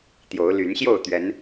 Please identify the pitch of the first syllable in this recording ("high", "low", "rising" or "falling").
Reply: rising